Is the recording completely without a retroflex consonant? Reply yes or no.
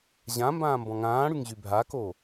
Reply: no